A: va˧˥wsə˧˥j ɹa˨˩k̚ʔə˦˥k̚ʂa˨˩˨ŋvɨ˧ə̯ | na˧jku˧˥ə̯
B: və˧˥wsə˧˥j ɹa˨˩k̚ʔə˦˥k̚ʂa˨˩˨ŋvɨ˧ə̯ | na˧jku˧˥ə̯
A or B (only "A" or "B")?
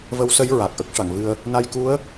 B